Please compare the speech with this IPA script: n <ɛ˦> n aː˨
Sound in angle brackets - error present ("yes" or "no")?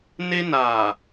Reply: yes